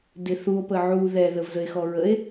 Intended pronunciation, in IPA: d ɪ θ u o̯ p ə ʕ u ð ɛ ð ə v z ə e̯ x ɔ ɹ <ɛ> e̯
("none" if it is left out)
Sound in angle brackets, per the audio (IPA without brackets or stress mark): ə